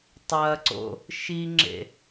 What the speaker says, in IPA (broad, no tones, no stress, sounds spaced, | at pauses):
tˤ ɐ ǀ o̰ | ʃ i ŋ͡ǁ ḛ